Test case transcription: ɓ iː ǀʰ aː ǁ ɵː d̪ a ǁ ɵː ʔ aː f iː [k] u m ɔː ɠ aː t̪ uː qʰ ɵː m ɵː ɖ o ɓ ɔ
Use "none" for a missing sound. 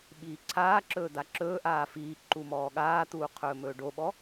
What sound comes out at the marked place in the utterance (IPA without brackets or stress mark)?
ǃ